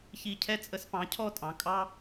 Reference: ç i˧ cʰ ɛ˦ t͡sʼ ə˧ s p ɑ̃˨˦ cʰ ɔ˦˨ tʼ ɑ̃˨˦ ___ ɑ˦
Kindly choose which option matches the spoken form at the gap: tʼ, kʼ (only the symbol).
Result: kʼ